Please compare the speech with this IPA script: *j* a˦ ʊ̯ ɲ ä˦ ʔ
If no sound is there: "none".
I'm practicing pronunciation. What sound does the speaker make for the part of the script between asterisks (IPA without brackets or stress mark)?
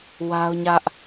w